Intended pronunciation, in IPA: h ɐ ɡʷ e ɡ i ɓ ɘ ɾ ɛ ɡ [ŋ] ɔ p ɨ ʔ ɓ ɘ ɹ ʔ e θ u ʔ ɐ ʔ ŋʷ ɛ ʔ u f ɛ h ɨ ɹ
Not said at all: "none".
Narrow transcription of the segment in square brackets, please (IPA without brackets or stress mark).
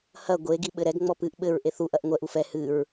ŋ͡m